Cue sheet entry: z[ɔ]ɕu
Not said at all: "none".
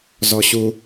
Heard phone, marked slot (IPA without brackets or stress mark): ɔ